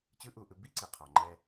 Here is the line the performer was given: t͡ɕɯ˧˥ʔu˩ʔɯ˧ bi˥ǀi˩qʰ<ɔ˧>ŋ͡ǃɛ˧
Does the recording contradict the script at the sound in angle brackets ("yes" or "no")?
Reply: yes